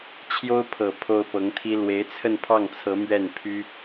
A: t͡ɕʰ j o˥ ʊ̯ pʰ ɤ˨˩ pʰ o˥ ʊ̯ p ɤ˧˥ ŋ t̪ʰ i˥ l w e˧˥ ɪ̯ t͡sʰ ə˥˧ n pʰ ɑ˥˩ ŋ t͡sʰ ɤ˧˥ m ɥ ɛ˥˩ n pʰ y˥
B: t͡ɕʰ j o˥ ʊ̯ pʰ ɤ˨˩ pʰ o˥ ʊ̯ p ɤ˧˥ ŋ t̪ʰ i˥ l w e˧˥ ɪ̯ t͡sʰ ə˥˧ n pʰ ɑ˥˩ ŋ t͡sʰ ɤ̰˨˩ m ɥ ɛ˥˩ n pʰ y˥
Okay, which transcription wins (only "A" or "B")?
A